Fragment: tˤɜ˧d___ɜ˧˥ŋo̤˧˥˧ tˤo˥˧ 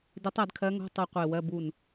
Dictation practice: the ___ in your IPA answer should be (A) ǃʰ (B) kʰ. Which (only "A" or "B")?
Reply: B